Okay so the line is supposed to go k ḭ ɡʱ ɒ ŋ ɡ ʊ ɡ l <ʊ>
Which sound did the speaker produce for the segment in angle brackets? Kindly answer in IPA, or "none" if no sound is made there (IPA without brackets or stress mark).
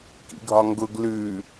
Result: ʉ